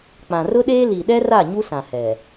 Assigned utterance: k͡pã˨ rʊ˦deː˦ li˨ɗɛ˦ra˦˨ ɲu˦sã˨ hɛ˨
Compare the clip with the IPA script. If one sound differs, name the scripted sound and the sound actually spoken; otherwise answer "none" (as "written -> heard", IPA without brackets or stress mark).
d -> ɗ